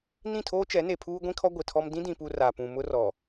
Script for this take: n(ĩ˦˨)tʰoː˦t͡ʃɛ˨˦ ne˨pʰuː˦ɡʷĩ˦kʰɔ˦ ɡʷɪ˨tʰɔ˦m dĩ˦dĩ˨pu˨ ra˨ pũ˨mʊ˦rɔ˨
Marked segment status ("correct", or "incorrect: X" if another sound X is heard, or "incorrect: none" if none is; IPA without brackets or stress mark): correct